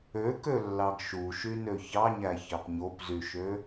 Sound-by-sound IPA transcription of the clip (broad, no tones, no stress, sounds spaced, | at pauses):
ø k ø lː ɑ ɡ ʃ u ʃ y n ø ç ɑ ɲ æ ç ɑ p ɲ o p z y ʃ ø